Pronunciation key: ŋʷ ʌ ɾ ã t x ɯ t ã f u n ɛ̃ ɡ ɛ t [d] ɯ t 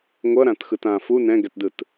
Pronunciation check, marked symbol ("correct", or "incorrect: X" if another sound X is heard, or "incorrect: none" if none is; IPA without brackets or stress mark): correct